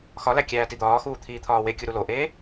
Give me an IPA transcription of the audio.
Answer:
x ɒ l æ kʲ æː t i d̪ ɒː x uː t̪ʰ iː t̪ʰ ɒː w e kʲ u ɾ u l o ʔ eː

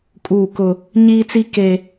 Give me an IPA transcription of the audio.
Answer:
kʼ uː˦˨ k ʊ˦ | ɲ iː˦ t͡s i˦ k e˦

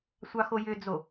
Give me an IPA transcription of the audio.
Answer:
sʷ ɑ x o j ʏ d͡z o

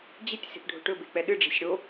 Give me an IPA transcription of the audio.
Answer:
d͡ʑ ɪ tʲ s e̤ p ɖʱ o̤ ʈ ɵ b e k͡p ɛ ɗ ɨ ɖ͡ʐ ɛ̤ sʲ ɽ o

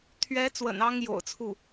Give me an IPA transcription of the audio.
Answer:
t̪ʰ ɥ ɛ˧˥ t͡s w ə̰˨˩ n ɑ˥ ŋ j o̰˨˩ ʊ̯ t͡sʰ u˥˩

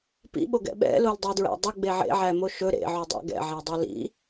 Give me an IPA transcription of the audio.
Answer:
p ḭ ɓ o ɡ ɛ̰ ɓ ɛ̰ l o l dˤ ʌ u̯ d ɹ æ̰ dˤ ʌ ɡ͡b e ʕ ḛ ʕ æ m o ʃ ɵ ɾ ḛ ʕ u dˤ æ̰ ɡ ɛ̰ ʕ ɛ dˤ o l ḭ

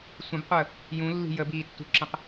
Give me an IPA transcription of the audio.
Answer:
sʷ ə̃ b qʷ əː | j ũ lː i̤ j ə b iː tː ṳ ǁ ə̃ q

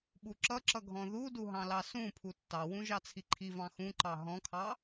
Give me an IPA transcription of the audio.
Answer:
ɓ u ǁ ʌ ǁ ʌ ɡʱ ɔ̃ ð u d u ɦ ɑ̃ l ɑ s ũ pʰ u tː ɑ w ũ ʒ ɑ t͡sʰ i ǃʰ i v ɑ̃ x ũ ǃ ɑ ɦ ɔ̃ kʰ ɑ

